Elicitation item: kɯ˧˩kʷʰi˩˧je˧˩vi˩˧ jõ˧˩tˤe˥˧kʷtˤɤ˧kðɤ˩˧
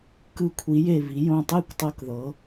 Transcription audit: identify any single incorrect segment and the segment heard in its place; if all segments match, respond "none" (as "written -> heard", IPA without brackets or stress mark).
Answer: none